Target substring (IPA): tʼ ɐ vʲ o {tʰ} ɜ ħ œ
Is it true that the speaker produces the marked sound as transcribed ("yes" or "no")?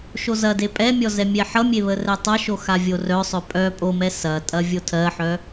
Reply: yes